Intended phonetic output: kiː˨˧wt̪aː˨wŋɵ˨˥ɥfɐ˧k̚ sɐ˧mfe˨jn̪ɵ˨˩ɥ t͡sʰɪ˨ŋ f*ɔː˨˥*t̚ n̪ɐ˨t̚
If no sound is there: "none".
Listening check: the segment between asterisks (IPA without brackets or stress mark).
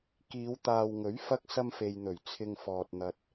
ɔː˨